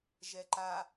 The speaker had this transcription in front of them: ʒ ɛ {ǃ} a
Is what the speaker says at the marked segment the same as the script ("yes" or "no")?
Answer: yes